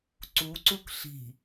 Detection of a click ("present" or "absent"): present